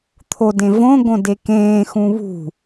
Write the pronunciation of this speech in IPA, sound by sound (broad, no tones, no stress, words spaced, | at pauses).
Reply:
t̪ʰodẽ võɡõ dekẽːxũ βṳ